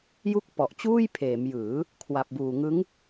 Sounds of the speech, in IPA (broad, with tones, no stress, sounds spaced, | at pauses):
j u˥˩ k̚ p ɔ˨˩ ʔ t͡ɕ uː˥˩ j pʰ eː˩˦ m j ɯː˩˦ | kʰ w a˨˩ p̚ b uː˨˩ ŋ ɯ˦˥ ŋ